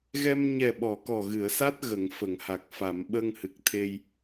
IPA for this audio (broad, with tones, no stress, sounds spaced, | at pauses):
ɣ ɛ˧ m ɲ ɛ˨˩ ɓ ɔ˨˩˨ k ɔ˨˩ ɣ ɨ˨˩˨ ə̯ s a˦˥ t̚ ɣ ə˨˩˨ ŋ f ə˨˩˨ ŋ h a˨˩ k̚ f a˨˩˨ m ɓ ə˧ ŋ h ɨ˨˩ k̚ t̪ʰ e˧ j